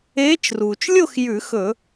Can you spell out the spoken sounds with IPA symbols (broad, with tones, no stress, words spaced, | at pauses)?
eː˧˥t͡ʃruː˩t͡ʃ lʲo˥˧x jʉ˧˩˧xɵ˧˩˧